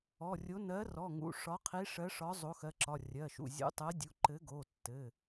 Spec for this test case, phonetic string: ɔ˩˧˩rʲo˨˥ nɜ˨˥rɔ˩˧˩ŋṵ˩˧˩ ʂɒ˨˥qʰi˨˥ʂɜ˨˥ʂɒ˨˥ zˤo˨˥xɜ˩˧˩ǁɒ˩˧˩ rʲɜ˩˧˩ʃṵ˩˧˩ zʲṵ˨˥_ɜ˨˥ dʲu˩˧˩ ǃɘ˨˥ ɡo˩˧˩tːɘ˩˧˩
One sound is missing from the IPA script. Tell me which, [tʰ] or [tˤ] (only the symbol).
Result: tˤ